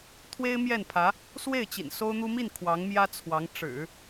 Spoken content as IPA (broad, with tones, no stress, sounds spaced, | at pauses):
t̪ʰ w e˥ ɪ̯ m j ɛ˥˩ n pʰ ä˧˥ | s w e˥˩ ɪ̯ t͡ɕ ḭ˨˩ n s o˥ ʊ̯ n̪ u˥ m i˥˩ n kʰ w ɑ˧˥ ŋ m j ä˥ t͡sʰ w ɑ˧˥ ŋ ʈ͡ʂ ɻ̩˨˩˦